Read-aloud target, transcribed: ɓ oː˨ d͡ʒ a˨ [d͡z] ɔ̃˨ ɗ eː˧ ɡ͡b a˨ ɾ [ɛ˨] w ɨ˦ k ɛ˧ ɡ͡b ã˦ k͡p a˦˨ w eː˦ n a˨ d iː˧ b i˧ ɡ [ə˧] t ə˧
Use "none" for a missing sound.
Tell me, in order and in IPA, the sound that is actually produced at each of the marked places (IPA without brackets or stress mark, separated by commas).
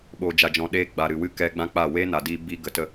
d͡ʒ, ɨ˨, ə˨